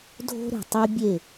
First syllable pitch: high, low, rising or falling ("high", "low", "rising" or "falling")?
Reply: high